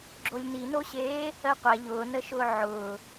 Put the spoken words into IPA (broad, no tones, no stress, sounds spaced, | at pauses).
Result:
ɡ͡ǁ o lʲ n i n o ɕ eː | ɜ qʷ æ ʎ ʊː n ə ʃ ʊː ʕ ʊː